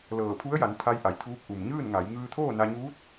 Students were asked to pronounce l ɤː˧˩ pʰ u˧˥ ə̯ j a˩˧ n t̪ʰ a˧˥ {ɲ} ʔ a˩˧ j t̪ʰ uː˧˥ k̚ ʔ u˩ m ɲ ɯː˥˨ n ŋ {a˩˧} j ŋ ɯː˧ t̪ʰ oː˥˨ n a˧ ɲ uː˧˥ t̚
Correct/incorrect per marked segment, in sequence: incorrect: j, correct

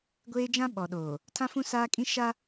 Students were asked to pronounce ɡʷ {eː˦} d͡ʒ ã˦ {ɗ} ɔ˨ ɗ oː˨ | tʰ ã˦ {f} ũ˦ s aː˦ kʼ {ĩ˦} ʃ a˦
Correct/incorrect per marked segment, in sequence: correct, incorrect: ɓ, correct, correct

